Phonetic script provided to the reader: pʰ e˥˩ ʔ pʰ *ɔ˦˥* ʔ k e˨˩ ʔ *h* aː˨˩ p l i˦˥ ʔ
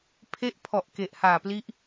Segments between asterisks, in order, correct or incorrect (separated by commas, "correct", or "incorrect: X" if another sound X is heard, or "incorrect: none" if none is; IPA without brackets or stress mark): incorrect: ɔ˨˩, correct